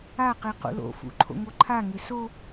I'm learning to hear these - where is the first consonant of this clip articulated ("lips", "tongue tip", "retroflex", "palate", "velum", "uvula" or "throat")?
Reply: uvula